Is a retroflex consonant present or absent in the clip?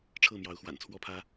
present